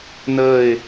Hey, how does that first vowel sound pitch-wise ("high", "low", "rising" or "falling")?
falling